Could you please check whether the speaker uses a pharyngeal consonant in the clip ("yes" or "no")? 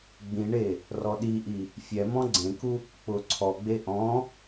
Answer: no